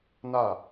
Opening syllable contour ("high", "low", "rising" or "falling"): falling